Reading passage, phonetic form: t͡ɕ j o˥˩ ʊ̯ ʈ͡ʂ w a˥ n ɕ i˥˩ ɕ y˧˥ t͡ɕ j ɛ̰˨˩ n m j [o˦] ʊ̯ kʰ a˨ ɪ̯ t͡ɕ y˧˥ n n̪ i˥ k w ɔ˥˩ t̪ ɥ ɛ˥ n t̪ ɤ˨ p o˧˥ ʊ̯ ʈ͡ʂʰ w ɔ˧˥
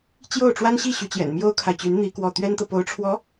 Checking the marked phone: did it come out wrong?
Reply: yes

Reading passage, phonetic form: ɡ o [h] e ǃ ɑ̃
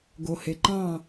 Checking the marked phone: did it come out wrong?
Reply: no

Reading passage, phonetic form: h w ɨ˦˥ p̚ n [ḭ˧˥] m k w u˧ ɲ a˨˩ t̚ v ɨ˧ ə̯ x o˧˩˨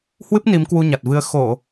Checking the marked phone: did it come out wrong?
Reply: yes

